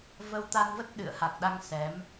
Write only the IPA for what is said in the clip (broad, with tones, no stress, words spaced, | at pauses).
və˧wt̪a˧nvə˦˥t̚ɗɨ̰˧˨ə̯ ha˨˩k̚ɗa˧ŋ sɛ˨˦m